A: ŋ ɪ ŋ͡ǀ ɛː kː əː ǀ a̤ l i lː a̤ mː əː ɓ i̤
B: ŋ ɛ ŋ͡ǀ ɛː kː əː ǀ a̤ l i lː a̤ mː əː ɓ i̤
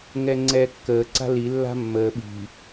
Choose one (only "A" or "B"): B